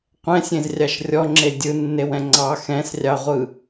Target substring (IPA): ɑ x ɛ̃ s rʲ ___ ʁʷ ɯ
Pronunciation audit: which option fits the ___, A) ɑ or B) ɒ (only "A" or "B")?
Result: A